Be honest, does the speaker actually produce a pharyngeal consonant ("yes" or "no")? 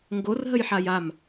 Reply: yes